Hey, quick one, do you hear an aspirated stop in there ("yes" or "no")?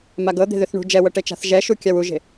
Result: no